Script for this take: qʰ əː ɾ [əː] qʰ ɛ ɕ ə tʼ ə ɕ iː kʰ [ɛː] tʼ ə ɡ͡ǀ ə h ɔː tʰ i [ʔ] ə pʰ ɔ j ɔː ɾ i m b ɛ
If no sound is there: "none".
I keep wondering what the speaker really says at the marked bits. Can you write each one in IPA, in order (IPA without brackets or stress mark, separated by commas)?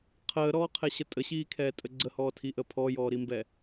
ɔː, ɛː, ʔ